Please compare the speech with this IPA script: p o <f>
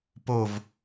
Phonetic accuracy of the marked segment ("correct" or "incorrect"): incorrect